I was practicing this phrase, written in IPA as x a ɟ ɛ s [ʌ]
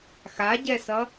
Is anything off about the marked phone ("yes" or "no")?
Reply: no